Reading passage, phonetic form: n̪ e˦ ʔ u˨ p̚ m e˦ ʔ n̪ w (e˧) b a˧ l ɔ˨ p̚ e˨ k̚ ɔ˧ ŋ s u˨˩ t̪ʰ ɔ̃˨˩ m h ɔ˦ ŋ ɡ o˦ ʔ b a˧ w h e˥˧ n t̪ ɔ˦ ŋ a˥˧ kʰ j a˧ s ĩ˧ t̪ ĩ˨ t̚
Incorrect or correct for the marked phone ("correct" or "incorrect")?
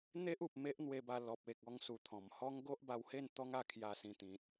correct